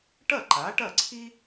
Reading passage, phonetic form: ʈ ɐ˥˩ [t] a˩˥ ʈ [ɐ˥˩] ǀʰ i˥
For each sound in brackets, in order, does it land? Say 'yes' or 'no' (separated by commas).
no, yes